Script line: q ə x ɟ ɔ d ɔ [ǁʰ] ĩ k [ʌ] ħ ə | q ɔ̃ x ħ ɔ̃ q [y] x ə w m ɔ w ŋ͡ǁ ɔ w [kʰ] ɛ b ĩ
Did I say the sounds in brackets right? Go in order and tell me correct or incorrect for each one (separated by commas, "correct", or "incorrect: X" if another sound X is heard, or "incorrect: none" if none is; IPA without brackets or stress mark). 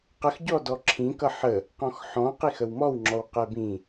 correct, correct, incorrect: i, incorrect: q